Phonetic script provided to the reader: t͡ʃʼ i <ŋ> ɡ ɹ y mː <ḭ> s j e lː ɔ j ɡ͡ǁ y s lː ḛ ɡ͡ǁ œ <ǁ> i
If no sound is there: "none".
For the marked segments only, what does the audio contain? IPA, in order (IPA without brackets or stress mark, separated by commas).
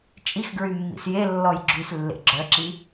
x, ḭ, ǁ